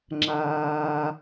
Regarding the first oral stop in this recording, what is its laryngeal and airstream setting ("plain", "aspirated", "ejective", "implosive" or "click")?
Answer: click